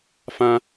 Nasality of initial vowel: nasal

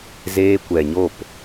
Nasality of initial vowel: oral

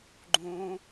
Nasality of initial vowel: nasal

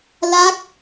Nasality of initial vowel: oral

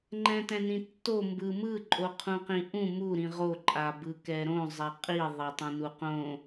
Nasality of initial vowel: nasal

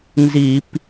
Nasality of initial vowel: oral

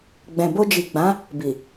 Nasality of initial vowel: nasal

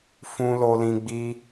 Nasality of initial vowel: nasal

